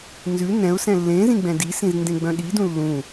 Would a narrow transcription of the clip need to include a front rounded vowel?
yes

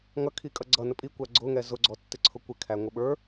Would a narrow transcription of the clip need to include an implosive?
yes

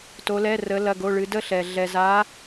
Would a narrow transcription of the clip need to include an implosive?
no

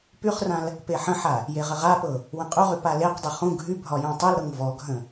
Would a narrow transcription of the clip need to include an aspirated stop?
no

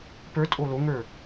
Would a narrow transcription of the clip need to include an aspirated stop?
no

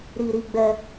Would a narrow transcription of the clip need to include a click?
no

